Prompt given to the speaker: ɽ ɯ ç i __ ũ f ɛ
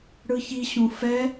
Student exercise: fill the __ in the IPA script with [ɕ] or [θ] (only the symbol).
ɕ